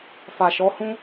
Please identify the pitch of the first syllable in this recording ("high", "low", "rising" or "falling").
low